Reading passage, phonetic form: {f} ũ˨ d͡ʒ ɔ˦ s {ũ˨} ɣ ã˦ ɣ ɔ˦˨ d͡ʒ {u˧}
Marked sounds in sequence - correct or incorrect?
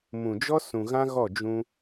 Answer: incorrect: m, correct, incorrect: ũ˧

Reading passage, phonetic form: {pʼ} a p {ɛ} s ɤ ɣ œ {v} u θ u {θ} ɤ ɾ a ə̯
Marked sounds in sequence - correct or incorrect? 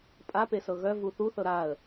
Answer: correct, incorrect: e, correct, correct

